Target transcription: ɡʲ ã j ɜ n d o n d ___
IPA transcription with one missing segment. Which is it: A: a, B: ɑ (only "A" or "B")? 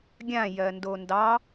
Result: B